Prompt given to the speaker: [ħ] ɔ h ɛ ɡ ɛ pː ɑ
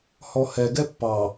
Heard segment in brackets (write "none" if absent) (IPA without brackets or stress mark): h